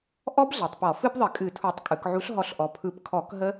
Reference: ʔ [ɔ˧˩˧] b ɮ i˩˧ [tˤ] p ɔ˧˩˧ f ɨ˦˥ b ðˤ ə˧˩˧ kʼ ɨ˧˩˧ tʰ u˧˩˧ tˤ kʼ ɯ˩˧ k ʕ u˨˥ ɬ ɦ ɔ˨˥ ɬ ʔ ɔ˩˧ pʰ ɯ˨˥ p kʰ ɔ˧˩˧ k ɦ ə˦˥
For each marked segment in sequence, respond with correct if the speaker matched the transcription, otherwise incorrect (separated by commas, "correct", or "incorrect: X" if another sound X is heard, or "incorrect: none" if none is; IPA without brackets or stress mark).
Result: incorrect: ɔ˦˥, correct